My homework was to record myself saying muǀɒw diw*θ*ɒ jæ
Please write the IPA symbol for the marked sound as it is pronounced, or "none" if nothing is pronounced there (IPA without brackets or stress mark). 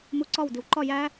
ǃ